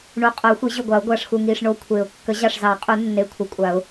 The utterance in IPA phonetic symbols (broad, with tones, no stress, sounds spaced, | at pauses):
ɳ u˨˩˦ qʼ o˨˩˦ xʷ i˨˩˦ ʑ ʊ˧˩ ɡʷ a˨˩˦ ʊ̯ ɡʷ a˧˩ ʂ x u˧˩ ŋ i˧˩ ʂ ɳ o˧˩ kʷʰ e˨˩˦ ʊ̯ kː ə˨˩˦ ʑ ɑ˧˩ ʂ z ɑ˨˩˦ qʼ u˨˩˦ nː e˧˩ kʷʰ ə˨˩˦ kʷʼ a˨˩˦ ʊ̯